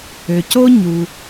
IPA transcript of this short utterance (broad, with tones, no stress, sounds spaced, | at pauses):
ø˩ c o˥ ɲ u˩